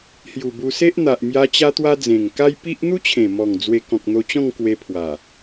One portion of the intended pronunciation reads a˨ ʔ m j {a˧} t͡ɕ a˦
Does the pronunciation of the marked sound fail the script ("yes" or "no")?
no